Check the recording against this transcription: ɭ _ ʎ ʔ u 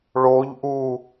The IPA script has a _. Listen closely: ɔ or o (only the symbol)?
o